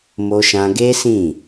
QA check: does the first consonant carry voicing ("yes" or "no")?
yes